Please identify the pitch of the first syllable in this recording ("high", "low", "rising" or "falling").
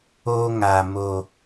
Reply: high